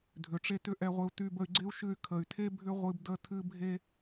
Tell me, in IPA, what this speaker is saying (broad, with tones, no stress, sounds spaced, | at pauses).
dʱ ʏ˨ ʈ͡ʂ e˦ t ʏ˦ ʔ ɛ˦ ʁʷ ɪ˦ u̯ t y˧ b ə˧ y̯ ɡ͡ǀ ɪ˦ u̯ ʃ ɨ˧ y̯ kʰ ə˨ y̯ tʰ e˦ bʱ ʏ˦ ʁʷ ɨ˧ b d ə˦ tʰ ɨ˦ bʱ e˧